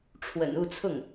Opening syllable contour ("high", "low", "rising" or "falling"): low